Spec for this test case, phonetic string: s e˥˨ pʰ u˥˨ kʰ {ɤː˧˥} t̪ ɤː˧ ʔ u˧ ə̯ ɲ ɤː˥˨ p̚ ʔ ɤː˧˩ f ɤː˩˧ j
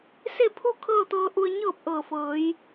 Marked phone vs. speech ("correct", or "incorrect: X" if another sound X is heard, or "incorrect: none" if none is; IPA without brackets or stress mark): incorrect: ɤː˥˨